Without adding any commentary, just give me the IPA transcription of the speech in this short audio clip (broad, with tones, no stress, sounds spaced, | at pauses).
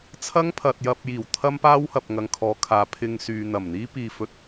t͡sʰ ɐ˥ ŋ pʰ ɐ˨ t̚ j ɐ˧ p̚ j iː˨˩ w t̪ʰ ɐ˥ m p aː˥ w h ɐ˨ p̚ ŋ ɐ˨ ŋ kʰ ɔː˨ kʰ aː˨ pʰ ɪ˧ ŋ s yː˨ n̪ ɐ˨˩ m n̪ iː˥ p iː˨ f ɵ˧ t̚